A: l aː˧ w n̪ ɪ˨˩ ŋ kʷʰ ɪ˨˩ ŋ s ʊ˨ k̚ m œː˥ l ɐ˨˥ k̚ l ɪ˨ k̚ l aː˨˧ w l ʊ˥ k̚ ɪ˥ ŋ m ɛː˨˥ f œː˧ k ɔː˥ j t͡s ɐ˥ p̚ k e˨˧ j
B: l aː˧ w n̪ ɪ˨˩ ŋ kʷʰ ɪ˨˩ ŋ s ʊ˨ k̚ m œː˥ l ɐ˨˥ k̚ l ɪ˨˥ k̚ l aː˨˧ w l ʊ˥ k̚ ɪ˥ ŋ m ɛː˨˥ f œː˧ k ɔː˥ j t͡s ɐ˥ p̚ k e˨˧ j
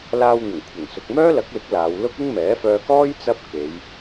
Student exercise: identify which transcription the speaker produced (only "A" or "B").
B